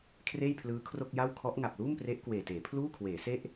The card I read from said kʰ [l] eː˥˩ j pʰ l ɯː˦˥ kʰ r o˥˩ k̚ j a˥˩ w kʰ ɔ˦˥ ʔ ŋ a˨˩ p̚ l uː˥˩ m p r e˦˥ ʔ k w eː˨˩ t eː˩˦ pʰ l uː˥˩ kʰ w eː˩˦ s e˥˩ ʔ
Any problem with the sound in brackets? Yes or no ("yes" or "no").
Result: yes